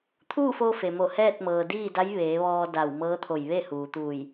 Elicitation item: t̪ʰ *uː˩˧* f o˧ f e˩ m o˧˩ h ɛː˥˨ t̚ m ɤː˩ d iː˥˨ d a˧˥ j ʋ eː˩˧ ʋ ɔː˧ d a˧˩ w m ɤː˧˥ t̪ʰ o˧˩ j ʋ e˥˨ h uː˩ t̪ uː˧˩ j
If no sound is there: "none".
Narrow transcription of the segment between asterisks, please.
uː˥˨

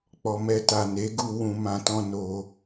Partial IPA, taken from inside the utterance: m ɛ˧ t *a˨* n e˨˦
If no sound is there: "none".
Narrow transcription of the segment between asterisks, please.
a˨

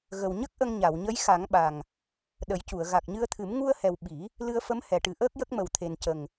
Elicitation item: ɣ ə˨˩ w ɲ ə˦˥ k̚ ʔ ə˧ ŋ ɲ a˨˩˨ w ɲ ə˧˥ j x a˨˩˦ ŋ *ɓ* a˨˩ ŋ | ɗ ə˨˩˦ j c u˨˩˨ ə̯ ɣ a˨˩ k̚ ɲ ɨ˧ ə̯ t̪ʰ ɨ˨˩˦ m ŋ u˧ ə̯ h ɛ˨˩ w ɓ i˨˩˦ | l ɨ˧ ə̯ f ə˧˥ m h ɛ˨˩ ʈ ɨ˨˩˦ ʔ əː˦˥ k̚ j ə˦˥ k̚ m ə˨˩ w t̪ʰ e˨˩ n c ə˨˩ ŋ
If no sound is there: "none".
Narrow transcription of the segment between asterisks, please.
ɓ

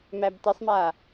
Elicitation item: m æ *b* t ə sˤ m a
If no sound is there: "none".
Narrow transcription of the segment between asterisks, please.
b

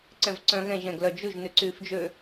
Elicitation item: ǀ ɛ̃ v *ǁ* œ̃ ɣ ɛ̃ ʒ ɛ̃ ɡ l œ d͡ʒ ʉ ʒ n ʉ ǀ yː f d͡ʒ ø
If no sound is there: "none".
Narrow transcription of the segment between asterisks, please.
ǀ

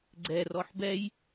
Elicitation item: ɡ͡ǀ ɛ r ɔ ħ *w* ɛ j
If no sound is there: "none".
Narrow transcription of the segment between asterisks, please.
b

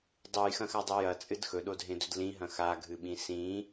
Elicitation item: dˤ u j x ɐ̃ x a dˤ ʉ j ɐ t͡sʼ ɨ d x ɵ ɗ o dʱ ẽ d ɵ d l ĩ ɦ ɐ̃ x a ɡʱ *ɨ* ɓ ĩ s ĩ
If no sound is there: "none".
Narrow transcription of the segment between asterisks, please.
ɨ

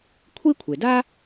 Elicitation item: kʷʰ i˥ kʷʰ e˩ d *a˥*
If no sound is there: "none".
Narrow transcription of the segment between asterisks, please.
a˥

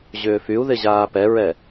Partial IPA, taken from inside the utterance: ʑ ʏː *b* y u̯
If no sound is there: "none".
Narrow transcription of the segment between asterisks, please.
f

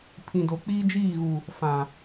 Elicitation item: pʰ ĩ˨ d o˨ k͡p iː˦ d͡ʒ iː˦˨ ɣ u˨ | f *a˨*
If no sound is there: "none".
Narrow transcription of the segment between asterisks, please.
ã˨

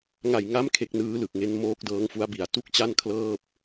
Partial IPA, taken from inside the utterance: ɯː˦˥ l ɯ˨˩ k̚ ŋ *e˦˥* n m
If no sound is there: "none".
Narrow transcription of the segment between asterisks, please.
e˦˥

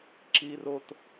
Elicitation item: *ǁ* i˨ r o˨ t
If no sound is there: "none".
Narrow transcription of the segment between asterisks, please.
ǁ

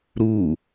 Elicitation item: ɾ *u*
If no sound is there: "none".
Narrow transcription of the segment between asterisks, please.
u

